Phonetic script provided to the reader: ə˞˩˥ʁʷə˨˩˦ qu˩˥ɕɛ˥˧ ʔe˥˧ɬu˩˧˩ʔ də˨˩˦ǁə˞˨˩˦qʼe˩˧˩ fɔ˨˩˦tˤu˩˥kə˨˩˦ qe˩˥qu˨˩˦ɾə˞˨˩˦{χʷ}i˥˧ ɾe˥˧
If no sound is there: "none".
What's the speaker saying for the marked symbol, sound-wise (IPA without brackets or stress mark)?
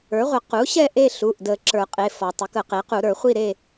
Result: χʷ